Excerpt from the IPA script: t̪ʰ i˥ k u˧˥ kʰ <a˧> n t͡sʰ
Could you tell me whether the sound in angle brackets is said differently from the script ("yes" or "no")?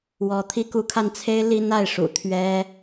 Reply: no